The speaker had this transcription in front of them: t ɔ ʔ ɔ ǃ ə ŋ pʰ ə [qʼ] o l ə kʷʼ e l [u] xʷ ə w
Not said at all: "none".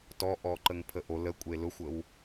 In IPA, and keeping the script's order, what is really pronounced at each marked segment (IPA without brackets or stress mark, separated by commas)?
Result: ʔ, ʊ